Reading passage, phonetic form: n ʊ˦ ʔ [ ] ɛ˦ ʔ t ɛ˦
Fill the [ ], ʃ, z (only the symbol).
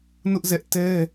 z